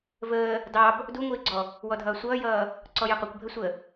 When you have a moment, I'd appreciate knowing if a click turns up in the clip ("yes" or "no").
yes